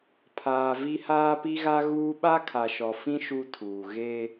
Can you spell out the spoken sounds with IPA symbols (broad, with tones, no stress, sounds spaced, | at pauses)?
pʰ aː˨ v i˦ h aː˦ p i˦ ɣ a˦ ɣ uː˦ ɓ a˦ kʰ a˨ ʃ ɔ˨ f ĩ˦ ʃ u˦ tʰ uː˨ ɣ e˦